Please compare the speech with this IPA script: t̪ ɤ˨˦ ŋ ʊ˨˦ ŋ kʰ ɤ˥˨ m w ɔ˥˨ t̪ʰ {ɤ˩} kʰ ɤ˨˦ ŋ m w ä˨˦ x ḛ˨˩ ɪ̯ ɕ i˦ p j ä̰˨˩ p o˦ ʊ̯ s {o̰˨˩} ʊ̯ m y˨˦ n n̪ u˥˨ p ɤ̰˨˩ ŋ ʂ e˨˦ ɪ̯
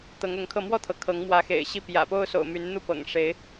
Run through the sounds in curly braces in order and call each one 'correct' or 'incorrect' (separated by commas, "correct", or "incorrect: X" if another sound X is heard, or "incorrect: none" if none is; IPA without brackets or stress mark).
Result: correct, correct